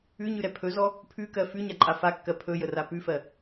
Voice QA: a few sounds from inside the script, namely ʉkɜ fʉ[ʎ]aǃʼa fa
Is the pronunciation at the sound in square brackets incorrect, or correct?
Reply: incorrect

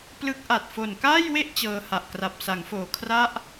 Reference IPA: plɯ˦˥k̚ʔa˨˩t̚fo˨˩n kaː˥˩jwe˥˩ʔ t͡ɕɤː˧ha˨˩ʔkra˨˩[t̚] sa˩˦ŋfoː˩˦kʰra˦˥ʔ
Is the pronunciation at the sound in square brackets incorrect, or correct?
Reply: incorrect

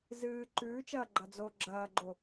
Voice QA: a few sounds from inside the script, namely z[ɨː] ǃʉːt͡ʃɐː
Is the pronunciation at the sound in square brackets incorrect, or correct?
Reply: correct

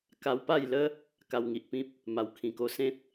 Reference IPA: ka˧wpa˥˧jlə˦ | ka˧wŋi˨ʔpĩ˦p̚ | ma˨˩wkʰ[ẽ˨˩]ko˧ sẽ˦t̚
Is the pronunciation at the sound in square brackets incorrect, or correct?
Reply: incorrect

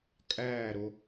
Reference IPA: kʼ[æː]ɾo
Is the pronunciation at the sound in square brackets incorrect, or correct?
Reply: correct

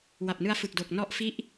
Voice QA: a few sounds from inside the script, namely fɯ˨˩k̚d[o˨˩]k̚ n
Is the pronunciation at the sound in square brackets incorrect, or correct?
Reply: correct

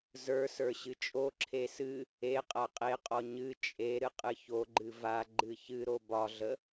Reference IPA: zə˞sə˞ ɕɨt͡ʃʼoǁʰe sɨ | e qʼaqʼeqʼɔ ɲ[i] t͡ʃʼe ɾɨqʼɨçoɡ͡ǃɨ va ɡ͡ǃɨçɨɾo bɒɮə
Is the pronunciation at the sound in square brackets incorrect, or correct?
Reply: incorrect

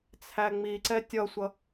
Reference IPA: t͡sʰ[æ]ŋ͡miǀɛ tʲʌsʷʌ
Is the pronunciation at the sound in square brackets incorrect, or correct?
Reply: correct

